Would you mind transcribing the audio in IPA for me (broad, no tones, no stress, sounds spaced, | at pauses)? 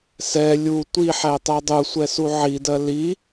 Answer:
s ɛ lʲ u tʷ i ħ æ tˤ æ dˤ u sʷ ɛ s u ʕ i d ɜ l i